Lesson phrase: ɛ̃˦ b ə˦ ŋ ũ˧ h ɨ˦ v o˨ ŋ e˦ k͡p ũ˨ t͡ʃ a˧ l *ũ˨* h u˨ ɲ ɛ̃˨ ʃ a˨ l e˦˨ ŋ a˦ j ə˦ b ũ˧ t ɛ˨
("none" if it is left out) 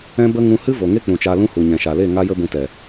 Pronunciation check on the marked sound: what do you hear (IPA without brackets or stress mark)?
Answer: ũ˦